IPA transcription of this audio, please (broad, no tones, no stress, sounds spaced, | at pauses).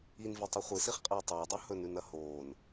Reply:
i n v e tˤ ɵ χʷ ɨ s i χ qʼ ɐː tˤ ɐː dˤ u h ɵ n ʉ n ɐ h oː n